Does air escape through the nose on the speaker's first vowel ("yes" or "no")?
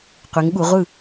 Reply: no